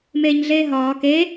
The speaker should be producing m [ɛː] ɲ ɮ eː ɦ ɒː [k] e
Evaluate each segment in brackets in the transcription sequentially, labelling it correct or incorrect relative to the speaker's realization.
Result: incorrect: eː, correct

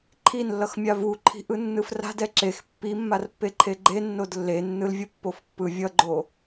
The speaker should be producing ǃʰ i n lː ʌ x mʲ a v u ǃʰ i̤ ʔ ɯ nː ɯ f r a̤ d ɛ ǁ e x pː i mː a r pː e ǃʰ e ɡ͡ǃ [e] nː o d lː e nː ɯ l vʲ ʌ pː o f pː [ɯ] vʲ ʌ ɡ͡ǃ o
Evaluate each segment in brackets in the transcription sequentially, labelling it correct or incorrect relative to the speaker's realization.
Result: correct, correct

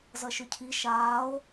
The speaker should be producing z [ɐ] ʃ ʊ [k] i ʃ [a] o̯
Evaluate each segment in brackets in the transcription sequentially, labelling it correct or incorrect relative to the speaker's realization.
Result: correct, incorrect: cʰ, incorrect: aː

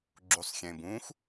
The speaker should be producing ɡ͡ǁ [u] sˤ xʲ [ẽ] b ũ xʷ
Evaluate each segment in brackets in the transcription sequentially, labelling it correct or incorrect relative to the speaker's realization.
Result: correct, correct

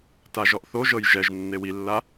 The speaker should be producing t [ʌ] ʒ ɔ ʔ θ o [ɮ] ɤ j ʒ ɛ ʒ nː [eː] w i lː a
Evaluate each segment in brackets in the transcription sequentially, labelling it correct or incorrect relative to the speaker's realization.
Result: incorrect: a, incorrect: ʒ, incorrect: e

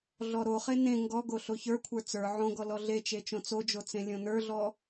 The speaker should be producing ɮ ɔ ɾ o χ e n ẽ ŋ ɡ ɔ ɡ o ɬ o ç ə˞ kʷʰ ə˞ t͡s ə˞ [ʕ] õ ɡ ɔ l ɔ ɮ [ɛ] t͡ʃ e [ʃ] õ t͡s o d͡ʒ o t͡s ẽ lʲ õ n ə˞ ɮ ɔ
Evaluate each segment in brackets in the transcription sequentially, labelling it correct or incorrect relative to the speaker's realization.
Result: correct, incorrect: e, incorrect: t͡ʃ

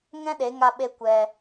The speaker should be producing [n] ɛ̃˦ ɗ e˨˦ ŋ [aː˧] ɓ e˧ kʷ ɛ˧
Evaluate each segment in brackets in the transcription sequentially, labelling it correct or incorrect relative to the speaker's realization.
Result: incorrect: ŋ, incorrect: a˧

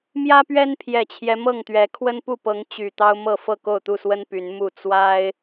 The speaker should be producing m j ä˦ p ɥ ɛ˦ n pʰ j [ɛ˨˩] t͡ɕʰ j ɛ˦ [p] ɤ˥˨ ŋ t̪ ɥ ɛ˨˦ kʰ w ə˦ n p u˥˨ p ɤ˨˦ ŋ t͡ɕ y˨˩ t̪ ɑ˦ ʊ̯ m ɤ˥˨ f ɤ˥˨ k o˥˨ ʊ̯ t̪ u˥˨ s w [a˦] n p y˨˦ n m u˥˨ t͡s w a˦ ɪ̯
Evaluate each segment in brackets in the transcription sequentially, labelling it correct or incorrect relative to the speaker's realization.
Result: correct, incorrect: m, incorrect: ə˦

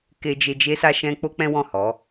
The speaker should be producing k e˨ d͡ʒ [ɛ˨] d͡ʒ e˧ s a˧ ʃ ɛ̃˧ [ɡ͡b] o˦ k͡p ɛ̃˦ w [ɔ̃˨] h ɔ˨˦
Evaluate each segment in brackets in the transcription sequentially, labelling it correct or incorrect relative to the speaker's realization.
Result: incorrect: e˨, incorrect: k͡p, incorrect: ɔ̃˦˨

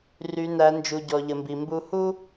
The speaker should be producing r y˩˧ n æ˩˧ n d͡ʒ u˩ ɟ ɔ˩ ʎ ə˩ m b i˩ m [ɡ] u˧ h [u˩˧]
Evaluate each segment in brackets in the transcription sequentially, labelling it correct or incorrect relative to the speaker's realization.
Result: incorrect: b, incorrect: u˥

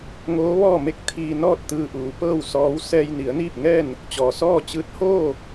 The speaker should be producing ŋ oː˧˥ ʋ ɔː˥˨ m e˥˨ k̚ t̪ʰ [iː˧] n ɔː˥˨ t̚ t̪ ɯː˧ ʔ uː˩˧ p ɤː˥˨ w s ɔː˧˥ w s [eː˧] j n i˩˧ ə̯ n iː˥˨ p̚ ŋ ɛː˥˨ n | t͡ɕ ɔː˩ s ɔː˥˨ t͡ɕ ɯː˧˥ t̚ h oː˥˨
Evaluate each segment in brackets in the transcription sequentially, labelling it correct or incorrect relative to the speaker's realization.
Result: correct, incorrect: ɛː˧

